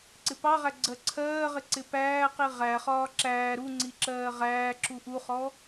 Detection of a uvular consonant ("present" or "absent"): present